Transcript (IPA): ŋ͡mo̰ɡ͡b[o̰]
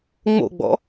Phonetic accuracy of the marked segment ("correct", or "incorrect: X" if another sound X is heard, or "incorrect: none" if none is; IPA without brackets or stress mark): incorrect: ɔ̰